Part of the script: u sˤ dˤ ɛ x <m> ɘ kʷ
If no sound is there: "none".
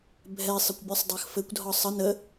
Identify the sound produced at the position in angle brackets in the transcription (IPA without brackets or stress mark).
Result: f